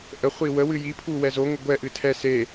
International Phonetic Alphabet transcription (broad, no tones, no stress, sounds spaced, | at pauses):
ʔ ə χʷ i w ə w ɨ j i pʰ u w ɛ z o ŋ ə ɡʷ ɛ ʔ ɨ tʰ ɛ s e